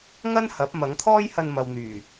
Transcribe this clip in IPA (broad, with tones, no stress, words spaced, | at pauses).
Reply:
ŋɐ˥nhɐ˨˥p̚mɐ˨˥ŋt̪ʰɔː˥j hɐ˧nmɐ˨wn̪yː˨˩